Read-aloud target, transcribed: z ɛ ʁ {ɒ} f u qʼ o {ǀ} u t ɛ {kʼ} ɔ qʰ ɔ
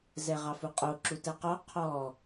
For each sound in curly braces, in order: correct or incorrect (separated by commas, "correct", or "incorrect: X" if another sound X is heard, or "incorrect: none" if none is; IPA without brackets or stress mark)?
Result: incorrect: ɑ, incorrect: ǁ, incorrect: q